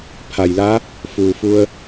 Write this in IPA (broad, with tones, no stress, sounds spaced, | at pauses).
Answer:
pʰ a˩ j l a˧˥ | f uː˩ f u˧ ə̯